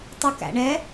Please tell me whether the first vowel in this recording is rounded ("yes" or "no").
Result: yes